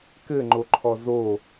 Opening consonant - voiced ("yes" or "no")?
no